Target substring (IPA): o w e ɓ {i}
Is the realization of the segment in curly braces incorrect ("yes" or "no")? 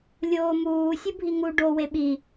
no